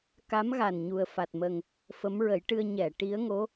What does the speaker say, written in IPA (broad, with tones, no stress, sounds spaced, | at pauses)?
k a˧˥ m ɣ a˨˩ n ɲ u˨˩ ə̯ f a˨˩ t̚ m ə˨˩ ŋ | f ə˧˥ m ɹ ə˨˩˦ j ʈ ɨ˧ ə̯ ɲ ɛ˨˩˨ ʈ i˧˥ ə̯ ŋ o˧˥